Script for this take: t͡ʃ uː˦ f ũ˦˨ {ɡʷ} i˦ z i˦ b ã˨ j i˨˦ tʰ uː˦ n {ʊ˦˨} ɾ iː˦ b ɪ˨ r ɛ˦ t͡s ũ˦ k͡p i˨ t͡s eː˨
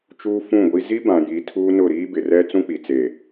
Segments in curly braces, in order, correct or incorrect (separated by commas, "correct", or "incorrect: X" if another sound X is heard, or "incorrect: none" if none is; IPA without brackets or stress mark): correct, correct